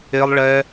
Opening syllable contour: high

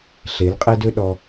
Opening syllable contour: rising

